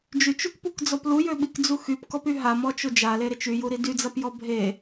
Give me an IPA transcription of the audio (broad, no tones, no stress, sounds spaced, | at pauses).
d͡ʒ y t͡ʃ u k p u k d͡z ɔ p l u j ø ɓ i k d͡z u x y p k ɔ p y ɦ a m ɔ t͡ʃ o d͡ʒ a l e ɾ e t͡ʃ y j u ɾ i d y d͡z a p j ɔ bʱ e